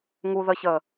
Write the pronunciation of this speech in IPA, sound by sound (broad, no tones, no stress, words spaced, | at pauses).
ŋuðəçə